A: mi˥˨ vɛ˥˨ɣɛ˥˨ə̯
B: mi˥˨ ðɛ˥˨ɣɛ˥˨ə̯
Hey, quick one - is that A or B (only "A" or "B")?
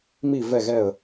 A